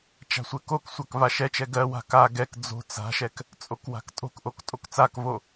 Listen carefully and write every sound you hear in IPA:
t͡ʃ a̤ sʷ ɛ k o k sʷ a k v a ʃ ɛ t͡ʃ ɛ ɡ ɜ w a̤ k a ɡ ɛ k d͡z o̤ t͡s a̤ ʃ ɛ k | t͡sʼ o k w a̤ k tʼ o̤ k ʔ o k tʼ o k t͡s a k v o

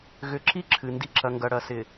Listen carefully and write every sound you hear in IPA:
ɣ ʏ˨ ǁ i˦ ǁʰ ɨ˨ n d i˦˨ ǁ ɐ˨ ŋ ɡ ɐ˨ ɽ ɐ˨ s ɪ˨

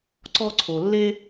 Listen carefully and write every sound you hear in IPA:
ǀ ɔ˥ ǀʰ o˩ lː e˥

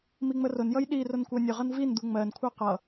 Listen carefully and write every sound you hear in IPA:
m i ŋ͡m ə r ʊ n j ʌ j ɗ i r ʊ n kʷ ɜ nʲ ʊ ʁ ʌ n v i n d̪ u ŋ͡m ɜ n kʷʰ ɜ q ʌ

